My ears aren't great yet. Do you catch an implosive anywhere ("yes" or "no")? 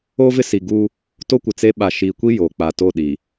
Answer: yes